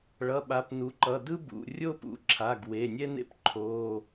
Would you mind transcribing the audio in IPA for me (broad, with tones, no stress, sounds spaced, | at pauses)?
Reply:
ɭ ʌ˩˧˩ ɓ a˩˥ p n u˩˥ ǃ ʌ˩˧˩ d ɯ˥ b ṵ˩˧˩ rʲ o˥ p ṵ˩˥ ǁʰ a˩˧˩ ɡ w e˩˧˩ nʲ ɛ˥ n ḛ˥ p ǃʰ o˩˧˩